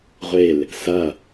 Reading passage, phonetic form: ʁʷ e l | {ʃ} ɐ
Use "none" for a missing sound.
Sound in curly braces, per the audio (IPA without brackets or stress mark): s